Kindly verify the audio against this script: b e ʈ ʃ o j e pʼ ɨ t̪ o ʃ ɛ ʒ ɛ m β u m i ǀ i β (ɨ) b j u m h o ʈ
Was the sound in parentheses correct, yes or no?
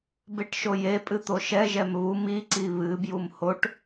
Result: yes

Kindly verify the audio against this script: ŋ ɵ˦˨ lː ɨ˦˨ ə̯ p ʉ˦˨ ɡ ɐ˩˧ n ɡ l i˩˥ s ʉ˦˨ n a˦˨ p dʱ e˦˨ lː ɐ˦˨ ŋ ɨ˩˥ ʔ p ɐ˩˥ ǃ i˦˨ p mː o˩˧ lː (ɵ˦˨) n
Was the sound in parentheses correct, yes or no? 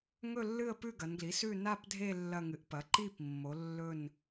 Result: yes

